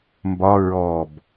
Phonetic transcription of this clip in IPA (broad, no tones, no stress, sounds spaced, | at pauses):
m b ɒ ɹ ɔ b